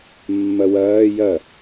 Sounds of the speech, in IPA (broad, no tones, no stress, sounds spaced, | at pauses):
mː ɐ w ɐː j ɐ